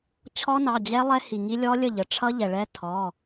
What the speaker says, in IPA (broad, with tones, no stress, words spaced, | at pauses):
t͡ɕʰɔ˦˥nɑ˩˧˩d͡ʑɛ˦˥ lˠɛ˦˥hi˩ŋi˦˥ lʲɔ˦˥ lʲə˥˩ʎə˩ ʈ͡ʂʰʌ˦˥ʎɛ˩ɭɛ˦˥ tʰɔ˩˧˩